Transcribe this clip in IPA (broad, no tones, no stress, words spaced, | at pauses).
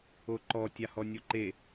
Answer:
oǃɔ tʲahɔnʲoǃe